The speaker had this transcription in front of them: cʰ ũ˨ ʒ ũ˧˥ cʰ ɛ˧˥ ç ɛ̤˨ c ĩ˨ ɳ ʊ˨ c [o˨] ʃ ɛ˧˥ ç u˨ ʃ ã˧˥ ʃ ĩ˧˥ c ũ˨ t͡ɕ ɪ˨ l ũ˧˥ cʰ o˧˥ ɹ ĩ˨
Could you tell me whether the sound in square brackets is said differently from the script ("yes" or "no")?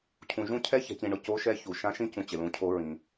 yes